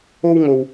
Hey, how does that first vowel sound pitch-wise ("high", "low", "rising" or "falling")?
high